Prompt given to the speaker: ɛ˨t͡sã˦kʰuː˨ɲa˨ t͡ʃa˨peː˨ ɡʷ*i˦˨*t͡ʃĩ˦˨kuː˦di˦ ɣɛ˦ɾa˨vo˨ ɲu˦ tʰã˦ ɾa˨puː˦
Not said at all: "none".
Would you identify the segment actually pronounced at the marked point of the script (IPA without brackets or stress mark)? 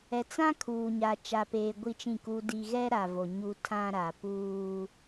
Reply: i˦